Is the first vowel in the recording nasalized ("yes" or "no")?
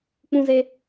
yes